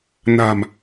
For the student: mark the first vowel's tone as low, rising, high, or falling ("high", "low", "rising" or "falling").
low